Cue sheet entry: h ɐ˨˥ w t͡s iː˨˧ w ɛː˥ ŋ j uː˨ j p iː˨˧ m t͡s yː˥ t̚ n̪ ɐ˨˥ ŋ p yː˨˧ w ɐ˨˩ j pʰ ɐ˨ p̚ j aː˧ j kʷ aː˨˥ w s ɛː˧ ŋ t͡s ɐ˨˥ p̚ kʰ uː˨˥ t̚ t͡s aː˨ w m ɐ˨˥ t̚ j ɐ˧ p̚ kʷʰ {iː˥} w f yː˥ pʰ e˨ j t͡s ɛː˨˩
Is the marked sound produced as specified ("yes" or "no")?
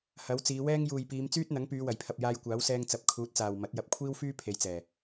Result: yes